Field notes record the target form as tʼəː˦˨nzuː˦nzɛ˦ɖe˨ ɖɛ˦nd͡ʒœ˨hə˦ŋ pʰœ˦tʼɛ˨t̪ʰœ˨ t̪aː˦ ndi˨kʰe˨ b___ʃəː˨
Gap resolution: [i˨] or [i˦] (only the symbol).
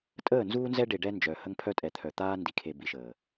i˨